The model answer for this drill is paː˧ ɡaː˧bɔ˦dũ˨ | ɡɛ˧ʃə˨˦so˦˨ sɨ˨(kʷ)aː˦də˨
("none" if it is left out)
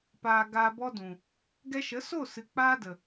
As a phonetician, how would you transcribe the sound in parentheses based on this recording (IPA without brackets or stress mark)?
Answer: k͡p